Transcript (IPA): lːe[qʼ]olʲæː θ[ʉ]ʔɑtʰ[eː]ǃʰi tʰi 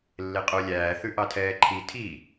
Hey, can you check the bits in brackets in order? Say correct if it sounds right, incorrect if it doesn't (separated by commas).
correct, correct, incorrect